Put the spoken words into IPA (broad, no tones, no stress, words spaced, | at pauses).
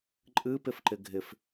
ǃʼɨpɪfǃɪ ɡʱɪf